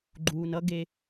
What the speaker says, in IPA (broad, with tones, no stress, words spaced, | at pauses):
ɡ͡ǃuː˨nʌ˦ɡe˧